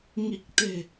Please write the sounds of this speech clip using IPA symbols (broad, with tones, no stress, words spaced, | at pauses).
ŋi˨˩k̚t̪e̤˨˩